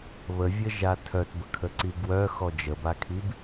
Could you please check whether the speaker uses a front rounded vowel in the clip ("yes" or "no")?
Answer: yes